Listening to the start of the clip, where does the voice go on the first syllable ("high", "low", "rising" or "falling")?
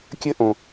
high